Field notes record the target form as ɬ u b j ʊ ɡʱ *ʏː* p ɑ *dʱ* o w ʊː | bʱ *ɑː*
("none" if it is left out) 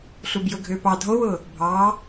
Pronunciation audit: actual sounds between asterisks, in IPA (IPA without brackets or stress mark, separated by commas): ʏː, dʱ, ɑː